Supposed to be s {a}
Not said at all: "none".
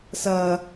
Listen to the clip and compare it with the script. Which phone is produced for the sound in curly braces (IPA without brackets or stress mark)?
ɐ